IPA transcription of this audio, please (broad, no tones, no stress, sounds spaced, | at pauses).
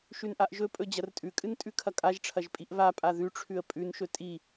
ʃ ʉ n ʔ a ʔ ʒ ɵ pʼ ɵ d͡ʑ ɐ r tʼ ʉ kʼ ɨ n tʼ ʉ kʰ ɐ kʼ a ʒ ʈ͡ʂʰ ɐ ʒ pʼ i ʔ β a pʼ a ð ʉ ʈ͡ʂʰ ʉ ə̯ pʼ ʉ n ʃ ɵ tʼ i